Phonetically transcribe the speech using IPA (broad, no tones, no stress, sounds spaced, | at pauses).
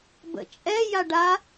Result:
b ə̰ t͡ʃʼ ɛ j a ɖ a